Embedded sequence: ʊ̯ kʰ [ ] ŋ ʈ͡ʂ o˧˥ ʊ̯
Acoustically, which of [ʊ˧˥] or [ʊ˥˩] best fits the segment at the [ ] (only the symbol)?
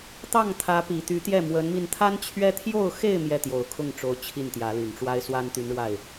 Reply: ʊ˥˩